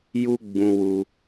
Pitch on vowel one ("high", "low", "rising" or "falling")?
high